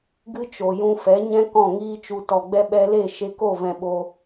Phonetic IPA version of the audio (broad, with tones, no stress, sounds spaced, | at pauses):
ɡ ɨ˦ t͡ʃ o˨ j ũ˧ f ɛ˨˦ ɲ ɛ̃˦ k ɔ̃˦˨ ŋ iː˦ t͡ʃ u˧ t ɔ˨ ɡ͡b ɛ˧ ɓ ɛ˧ l e˦˨ ʃ e˧ k o˦˨ v ɛ̃˨ ɓ o˧